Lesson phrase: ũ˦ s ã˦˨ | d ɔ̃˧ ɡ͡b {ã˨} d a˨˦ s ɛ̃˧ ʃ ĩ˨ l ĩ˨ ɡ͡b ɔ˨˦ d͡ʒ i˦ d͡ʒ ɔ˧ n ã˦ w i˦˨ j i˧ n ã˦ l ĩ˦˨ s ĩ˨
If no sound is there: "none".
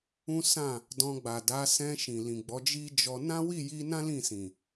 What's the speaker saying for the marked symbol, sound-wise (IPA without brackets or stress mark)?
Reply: a˨